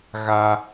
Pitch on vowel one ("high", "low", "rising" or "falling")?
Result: high